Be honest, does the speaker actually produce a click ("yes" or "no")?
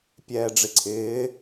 yes